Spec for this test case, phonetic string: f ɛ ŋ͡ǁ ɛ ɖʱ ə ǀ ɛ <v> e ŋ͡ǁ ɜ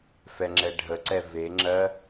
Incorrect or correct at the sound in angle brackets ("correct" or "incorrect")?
correct